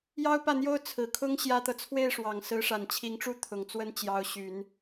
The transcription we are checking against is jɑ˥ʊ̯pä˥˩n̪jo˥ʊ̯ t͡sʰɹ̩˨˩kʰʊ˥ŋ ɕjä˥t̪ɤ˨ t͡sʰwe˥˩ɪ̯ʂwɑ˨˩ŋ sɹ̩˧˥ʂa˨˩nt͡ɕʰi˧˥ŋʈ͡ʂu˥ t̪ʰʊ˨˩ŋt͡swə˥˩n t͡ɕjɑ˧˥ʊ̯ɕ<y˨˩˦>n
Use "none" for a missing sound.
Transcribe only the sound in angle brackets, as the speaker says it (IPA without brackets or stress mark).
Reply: y˨˩˦